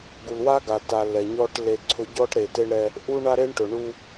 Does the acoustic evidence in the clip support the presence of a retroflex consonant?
yes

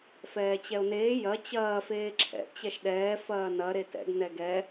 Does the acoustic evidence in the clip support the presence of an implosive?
yes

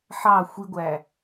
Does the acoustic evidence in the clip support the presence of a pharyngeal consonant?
yes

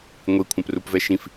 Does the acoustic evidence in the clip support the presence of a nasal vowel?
yes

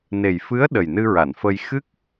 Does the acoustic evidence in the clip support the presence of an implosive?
yes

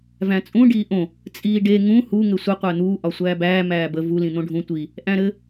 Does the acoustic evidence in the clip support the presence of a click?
no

